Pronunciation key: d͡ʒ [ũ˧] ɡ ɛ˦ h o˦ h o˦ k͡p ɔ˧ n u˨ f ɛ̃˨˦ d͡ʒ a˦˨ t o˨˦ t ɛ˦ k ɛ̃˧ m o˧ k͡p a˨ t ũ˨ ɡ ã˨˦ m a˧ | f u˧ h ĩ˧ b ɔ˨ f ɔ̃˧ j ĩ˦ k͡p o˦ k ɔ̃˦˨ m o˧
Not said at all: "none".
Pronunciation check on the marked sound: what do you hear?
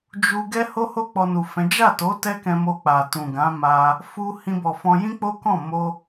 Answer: u˧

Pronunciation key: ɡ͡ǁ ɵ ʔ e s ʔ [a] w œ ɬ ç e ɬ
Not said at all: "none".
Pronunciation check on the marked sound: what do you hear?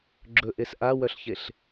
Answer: a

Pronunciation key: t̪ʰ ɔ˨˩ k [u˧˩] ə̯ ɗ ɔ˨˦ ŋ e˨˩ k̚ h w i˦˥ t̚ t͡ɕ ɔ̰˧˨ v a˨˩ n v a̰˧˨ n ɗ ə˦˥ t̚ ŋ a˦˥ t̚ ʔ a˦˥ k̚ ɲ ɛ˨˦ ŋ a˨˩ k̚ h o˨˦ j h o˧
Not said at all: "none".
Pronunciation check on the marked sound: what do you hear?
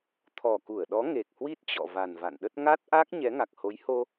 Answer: u˧˩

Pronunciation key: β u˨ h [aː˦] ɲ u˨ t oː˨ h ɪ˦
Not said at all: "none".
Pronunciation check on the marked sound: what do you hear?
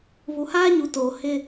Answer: aː˦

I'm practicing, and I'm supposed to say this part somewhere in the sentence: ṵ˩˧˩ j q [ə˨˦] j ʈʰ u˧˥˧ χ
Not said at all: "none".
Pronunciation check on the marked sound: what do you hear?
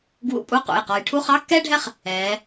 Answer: ɔ˨˦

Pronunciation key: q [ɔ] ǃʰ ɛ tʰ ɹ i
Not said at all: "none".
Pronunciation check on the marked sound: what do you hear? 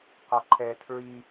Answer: ɔ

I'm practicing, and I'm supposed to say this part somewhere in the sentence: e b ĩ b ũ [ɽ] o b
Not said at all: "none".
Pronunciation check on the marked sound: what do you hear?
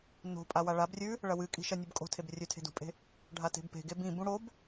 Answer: ɽ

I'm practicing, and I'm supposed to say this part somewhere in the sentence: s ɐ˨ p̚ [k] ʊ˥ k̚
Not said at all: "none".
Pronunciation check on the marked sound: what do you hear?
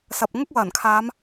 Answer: ŋ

